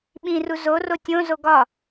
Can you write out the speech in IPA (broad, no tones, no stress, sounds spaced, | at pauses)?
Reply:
ɓ ĩ r u z o r o tʲ õ z o ɡ ɒ